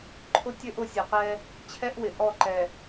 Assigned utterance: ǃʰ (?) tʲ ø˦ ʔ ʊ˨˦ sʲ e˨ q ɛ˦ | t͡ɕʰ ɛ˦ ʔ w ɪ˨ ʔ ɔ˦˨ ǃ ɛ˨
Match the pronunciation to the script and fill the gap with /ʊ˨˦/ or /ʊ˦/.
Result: ʊ˦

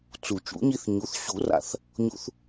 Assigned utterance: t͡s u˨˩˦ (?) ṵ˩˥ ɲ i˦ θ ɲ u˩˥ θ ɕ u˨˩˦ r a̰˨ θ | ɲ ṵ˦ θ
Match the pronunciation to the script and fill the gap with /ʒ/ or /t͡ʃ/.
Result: t͡ʃ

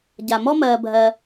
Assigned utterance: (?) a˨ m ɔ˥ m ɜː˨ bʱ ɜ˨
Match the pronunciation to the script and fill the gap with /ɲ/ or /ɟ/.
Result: ɟ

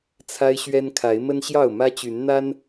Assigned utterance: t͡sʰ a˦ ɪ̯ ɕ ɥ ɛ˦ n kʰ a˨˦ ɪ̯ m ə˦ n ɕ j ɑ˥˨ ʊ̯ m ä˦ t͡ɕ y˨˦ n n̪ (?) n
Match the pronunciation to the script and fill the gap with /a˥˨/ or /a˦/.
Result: a˦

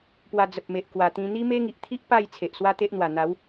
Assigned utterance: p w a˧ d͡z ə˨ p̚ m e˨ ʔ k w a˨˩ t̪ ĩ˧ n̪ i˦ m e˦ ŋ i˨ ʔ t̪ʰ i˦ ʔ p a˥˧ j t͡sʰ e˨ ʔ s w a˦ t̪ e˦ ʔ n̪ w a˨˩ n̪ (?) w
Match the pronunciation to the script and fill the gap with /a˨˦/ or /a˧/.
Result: a˨˦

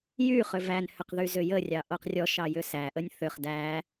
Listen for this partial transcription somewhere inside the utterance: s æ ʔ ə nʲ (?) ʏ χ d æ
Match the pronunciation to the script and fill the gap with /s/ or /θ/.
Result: θ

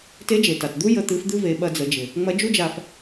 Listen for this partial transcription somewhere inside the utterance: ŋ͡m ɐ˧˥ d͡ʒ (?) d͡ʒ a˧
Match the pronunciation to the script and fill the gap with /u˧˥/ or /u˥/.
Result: u˥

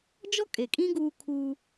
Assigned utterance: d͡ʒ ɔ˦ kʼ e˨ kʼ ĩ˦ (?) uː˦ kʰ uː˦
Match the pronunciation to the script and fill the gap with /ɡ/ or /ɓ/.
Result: ɡ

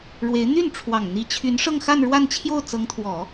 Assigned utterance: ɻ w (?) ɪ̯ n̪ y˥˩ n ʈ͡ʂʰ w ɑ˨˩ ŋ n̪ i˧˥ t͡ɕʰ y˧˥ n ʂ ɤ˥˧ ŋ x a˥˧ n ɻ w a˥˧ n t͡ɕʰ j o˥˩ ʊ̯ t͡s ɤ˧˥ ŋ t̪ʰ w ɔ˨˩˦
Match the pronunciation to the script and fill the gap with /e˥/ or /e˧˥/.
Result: e˧˥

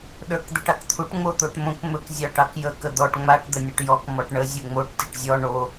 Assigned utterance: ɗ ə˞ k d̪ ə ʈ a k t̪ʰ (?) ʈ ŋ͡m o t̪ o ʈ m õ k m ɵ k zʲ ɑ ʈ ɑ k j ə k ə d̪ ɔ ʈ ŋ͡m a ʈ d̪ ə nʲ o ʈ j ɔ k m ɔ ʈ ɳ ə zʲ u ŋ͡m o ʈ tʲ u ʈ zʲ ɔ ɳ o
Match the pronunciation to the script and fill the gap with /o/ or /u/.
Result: u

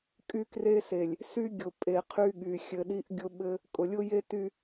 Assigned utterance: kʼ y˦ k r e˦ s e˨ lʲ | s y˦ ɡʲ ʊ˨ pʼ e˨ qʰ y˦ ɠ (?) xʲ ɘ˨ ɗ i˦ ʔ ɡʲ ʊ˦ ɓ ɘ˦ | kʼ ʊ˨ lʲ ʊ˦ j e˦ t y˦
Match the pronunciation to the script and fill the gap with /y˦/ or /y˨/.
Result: y˨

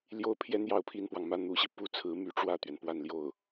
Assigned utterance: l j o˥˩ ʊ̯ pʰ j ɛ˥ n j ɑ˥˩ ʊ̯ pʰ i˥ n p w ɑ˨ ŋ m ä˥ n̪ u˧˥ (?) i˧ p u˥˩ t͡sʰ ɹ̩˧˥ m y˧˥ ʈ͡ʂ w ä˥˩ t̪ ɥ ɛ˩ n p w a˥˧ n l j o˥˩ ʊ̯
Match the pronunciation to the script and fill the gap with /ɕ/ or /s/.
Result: ɕ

